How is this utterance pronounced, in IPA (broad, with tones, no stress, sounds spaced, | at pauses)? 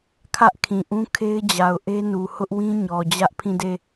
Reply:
kʰ ä˦ ʔ kʰ ĩ˨ ʔ ũ˦ kʰ e˦ ɪ̯ d͡ʑ a˨ ʊ̯ ʔ e˦ n u˨ h ʊ˦ ʔ w ĩ˦ ɲ ɔ˨ d͡ʑ ä˦ ʔ pʰ ĩ˦˨ d e˦˨